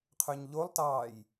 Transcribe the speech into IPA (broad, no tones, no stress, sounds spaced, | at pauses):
qʰ ø ɲ ʎ o lˠ t ɑː j